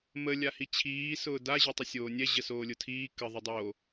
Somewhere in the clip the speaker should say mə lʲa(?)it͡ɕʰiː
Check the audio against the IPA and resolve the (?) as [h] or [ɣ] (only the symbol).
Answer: h